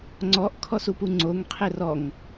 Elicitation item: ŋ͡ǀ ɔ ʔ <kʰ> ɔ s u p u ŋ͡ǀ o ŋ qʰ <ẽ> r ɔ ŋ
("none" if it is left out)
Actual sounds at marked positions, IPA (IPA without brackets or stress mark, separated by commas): kʰ, e